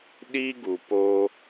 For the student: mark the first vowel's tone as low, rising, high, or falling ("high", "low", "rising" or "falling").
high